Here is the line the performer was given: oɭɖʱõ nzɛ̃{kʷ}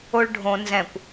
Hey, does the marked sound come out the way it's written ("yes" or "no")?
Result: yes